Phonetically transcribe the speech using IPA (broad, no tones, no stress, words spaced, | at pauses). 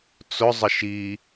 t͡sʊzˤə ʃi